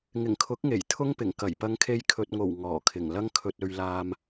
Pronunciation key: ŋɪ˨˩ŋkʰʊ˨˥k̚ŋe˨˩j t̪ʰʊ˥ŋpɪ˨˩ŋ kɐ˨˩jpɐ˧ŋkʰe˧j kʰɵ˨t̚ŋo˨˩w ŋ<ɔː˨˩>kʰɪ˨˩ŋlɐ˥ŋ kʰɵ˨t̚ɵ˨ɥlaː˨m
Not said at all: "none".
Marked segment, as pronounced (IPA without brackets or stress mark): ɔː˨˩